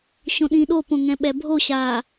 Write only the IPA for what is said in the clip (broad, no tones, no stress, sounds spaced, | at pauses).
ɕ õ ɗ ĩ ɗ o p õ ŋ ɛ̃ ɓ ɛ bʱ o ɕ a